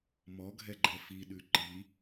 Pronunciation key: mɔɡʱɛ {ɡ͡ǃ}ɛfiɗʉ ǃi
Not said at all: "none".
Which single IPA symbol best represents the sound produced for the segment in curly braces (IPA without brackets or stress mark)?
ɡ͡ǃ